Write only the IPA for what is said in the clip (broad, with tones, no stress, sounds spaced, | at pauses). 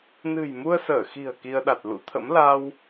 n ɨ̤˨˩ j m u˧ ə̯ s əː˧˩ x i̤˨˩ ə̯ k i˧ ə̯ ɗ a˨˩ t̚ l ṵ˧˥ t̪ʰ ə̰˧˥ m l a˧ w